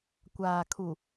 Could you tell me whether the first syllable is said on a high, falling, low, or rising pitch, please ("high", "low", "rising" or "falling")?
low